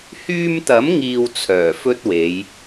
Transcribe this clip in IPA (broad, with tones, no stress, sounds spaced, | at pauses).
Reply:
h yː˧ m t̪ ɐ˨˥ m ŋ iː˨ w t͡sʰ œː˨˩ f ɵ˥ t̚ w e˨˧ j